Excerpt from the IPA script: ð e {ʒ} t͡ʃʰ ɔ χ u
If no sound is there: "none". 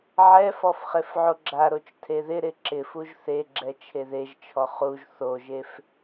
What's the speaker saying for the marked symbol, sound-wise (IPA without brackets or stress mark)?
ʒ